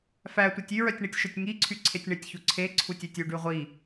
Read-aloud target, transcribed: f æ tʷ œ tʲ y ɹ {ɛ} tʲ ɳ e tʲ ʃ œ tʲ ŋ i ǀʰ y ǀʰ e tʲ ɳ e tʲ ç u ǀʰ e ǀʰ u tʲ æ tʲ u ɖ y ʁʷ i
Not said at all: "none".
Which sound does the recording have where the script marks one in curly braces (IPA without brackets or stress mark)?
œ